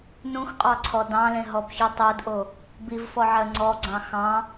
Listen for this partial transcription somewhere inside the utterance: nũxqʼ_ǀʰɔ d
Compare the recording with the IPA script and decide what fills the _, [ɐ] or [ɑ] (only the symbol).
ɑ